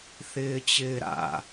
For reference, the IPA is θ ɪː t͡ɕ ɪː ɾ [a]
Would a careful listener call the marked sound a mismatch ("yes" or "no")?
yes